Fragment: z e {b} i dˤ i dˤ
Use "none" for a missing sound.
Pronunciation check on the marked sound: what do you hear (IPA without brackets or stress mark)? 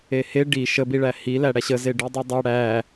ɖ